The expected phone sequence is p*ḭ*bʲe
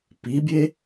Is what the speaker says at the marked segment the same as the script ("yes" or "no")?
no